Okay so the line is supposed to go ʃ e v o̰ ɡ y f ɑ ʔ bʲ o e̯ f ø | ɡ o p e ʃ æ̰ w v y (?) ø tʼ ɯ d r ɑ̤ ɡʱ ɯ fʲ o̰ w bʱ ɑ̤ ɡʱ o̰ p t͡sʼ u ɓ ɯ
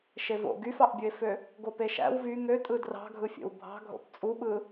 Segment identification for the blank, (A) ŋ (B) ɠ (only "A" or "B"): A